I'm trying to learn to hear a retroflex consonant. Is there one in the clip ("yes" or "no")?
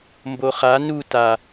no